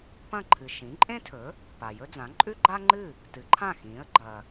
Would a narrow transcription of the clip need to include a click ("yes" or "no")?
yes